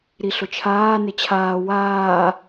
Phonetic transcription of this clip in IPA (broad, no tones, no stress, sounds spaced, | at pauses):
ɾ i ɬ ʊ t͡ʃʰ aː n ɪ t͡ɕʰ aː w aː